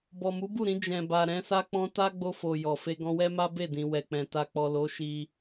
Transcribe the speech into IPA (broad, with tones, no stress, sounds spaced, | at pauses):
b ɔ˨ m u˨˦ b u˦˨ ɾ ĩ˧ d͡ʒ ɛ̃˨ b a˨ ɾ ɛ̃˨˦ s a˦ k͡p ɔ̃˦ t a˦ ɡ͡b o˧ f o˨ j ɔ˨ f e˧ ɡ ɔ̃˧ w ɛ˦ m a˦ b e˦˨ d ĩ˨ w ɛ˨ k͡p ɛ̃˨ t a˨ k͡p ɔ˨ l o˨˦ ʃ i˧